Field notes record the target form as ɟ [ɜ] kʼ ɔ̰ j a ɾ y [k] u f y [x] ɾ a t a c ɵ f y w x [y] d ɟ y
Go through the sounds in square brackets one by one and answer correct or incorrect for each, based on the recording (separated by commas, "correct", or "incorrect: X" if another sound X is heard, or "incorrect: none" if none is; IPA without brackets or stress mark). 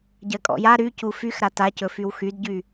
correct, incorrect: c, correct, correct